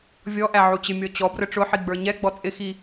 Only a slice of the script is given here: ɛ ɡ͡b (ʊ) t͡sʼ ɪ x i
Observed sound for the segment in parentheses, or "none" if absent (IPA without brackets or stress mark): ɔ